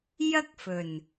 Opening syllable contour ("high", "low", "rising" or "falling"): high